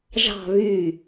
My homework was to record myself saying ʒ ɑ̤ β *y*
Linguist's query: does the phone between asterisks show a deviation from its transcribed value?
no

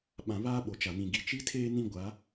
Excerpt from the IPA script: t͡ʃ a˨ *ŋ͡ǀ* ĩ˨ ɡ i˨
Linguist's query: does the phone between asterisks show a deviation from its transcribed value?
yes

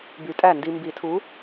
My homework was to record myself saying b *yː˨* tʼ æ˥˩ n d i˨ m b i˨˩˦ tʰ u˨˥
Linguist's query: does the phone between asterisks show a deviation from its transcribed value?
yes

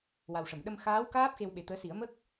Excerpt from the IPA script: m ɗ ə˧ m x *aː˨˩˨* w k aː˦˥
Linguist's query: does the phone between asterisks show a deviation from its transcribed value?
yes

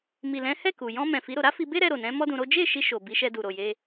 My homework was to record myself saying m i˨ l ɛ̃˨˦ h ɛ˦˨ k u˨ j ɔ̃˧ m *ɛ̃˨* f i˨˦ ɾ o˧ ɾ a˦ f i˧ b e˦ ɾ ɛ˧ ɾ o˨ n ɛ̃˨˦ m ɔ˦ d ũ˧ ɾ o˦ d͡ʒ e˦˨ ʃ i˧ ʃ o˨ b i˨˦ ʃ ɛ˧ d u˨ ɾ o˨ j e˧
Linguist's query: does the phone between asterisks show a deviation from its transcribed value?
no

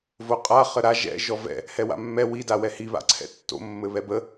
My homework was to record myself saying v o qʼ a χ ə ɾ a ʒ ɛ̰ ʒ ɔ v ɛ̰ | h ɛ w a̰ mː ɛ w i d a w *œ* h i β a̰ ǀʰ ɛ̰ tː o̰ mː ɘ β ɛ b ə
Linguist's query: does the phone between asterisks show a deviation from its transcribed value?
yes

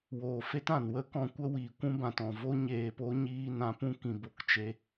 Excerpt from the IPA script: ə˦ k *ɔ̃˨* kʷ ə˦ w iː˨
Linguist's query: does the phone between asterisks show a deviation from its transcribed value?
yes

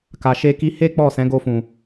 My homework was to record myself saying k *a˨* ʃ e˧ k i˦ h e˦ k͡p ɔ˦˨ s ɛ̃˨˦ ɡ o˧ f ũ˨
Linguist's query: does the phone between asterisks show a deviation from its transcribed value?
no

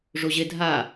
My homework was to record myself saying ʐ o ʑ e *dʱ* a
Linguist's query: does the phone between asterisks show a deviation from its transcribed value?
no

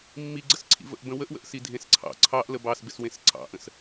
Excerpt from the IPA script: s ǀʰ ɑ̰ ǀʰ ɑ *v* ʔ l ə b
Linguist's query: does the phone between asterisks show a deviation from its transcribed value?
yes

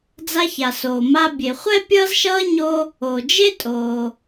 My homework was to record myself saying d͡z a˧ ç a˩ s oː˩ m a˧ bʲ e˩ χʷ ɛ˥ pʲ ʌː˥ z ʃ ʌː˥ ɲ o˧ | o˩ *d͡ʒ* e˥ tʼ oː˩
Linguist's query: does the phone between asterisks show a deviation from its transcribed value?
no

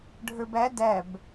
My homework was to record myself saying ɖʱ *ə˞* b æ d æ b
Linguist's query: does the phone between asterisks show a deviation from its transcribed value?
no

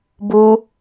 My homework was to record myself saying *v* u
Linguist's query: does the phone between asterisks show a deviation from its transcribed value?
yes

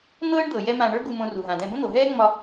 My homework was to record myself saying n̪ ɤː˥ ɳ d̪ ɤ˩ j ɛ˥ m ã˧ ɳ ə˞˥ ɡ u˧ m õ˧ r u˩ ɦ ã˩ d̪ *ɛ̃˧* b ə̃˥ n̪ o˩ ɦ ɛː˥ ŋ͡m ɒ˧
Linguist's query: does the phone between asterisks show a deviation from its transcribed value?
no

